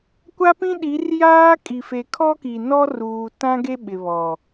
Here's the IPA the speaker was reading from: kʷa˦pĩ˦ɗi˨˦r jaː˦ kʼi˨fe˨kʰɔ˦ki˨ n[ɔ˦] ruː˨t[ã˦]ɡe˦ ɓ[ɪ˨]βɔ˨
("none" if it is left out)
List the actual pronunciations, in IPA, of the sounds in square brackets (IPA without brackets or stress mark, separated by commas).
ɔ˦, ã˦, ɪ˨